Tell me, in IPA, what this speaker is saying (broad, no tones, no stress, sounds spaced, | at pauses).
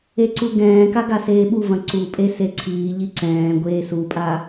e ǀ u ɡ ɛ̃ː k a ɡ a s eː ɓ u v ɐ̃ ǀ u pʼ e s e ǀʰ iː ʎ i ǀ ɛ̃ː ɡʷ eː s u pʼ a